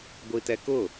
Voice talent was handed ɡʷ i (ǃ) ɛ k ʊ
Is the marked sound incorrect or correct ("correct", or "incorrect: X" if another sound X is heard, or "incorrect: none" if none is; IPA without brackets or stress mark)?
incorrect: t